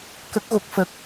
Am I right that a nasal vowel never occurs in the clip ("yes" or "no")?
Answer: yes